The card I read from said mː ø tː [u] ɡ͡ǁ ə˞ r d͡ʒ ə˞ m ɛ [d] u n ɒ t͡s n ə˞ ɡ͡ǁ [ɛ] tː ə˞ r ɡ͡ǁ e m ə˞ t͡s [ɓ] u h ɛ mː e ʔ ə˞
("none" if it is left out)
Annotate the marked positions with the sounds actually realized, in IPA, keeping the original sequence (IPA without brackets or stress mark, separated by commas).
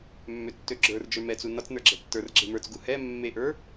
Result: ø, t͡s, ɛ, ɡ